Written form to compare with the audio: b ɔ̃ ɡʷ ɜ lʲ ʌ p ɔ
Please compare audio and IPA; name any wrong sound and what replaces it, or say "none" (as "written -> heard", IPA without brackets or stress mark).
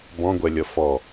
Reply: p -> f